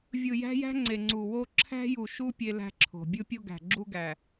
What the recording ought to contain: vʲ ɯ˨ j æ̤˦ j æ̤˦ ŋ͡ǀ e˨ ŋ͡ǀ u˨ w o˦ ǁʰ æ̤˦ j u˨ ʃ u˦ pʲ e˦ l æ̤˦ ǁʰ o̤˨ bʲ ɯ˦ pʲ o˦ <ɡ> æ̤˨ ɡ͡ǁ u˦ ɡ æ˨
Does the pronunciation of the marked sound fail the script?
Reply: no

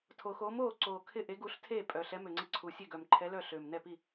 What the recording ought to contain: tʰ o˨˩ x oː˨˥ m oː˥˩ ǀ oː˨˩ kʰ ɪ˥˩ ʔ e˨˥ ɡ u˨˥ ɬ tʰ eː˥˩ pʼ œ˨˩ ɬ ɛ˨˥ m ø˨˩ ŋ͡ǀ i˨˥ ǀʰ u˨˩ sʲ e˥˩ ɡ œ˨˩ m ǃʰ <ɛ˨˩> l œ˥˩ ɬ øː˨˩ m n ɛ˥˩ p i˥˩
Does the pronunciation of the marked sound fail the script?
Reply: yes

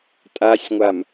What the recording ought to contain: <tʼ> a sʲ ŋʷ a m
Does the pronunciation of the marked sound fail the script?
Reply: no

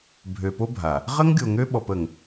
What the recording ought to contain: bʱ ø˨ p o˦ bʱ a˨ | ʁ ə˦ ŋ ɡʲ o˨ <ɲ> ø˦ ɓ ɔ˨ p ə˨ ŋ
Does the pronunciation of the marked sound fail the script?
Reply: yes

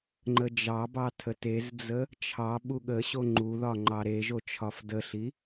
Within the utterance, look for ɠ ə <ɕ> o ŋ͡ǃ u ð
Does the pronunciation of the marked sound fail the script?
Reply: no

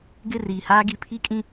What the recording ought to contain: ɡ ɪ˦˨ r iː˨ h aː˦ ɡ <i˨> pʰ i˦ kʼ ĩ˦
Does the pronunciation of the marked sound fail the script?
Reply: no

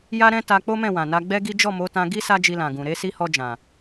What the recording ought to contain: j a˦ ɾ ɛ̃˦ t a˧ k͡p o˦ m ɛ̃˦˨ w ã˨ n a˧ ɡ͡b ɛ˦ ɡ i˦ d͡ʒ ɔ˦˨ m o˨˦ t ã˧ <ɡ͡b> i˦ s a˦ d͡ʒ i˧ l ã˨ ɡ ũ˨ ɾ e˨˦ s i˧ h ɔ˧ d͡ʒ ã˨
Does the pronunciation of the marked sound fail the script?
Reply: yes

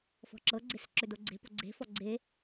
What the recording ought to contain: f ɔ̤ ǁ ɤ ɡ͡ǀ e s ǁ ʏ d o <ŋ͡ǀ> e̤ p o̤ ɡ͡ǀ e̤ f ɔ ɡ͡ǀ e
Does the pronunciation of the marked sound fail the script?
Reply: yes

